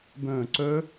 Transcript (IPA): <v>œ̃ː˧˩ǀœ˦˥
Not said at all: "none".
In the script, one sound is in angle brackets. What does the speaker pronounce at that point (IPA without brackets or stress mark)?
b